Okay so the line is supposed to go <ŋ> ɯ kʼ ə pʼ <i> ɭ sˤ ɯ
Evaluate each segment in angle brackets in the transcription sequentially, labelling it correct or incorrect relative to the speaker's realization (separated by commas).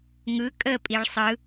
correct, correct